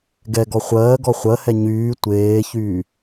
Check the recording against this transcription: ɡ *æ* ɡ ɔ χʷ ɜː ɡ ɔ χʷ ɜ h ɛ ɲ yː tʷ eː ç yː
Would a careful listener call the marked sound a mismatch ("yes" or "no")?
yes